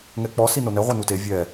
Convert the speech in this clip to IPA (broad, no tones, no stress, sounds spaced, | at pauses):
ŋ ɛ k͡p ɔ s i n o n ɛ ʁʷ e n u t e vʲ ɛ